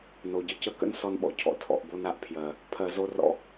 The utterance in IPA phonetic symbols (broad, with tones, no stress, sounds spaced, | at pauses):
n o˨ ɟ ə˧ c ə˧ k ə̰˦ n s ɔ˧ n ɓ ɔ̰˨ cʰ ɔ̰˧ tʰ ɔ̰˨ ʔ b o˧ n a˧ ʔ pʰ j ɜ˨ | pʰ ɜ˧ z o˦ r ɔ̰˦